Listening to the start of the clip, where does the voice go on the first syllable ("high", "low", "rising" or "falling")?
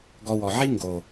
low